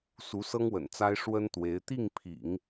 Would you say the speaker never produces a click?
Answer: yes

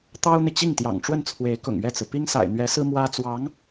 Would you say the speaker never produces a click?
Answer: yes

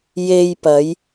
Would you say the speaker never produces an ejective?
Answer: yes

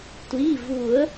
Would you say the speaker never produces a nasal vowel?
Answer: yes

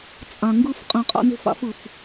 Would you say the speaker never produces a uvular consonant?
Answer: no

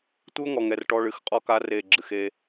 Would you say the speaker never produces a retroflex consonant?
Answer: no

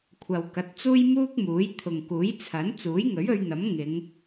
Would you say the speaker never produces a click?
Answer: yes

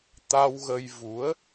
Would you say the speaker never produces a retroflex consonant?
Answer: yes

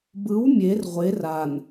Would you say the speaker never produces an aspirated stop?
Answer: yes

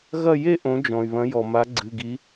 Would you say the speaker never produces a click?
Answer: no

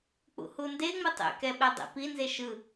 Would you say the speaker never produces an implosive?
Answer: no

